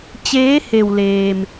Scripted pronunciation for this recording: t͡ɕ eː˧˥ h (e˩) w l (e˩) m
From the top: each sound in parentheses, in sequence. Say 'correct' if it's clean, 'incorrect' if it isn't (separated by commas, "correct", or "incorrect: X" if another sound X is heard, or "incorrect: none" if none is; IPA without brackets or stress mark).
correct, incorrect: eː˩